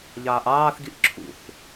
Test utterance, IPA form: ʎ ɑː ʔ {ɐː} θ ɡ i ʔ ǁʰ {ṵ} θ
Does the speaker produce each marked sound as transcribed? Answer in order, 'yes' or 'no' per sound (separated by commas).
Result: no, yes